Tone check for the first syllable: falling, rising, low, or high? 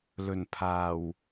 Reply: low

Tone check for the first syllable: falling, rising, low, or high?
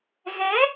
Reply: rising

